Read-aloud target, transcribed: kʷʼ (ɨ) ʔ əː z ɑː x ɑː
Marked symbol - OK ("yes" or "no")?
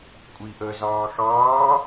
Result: no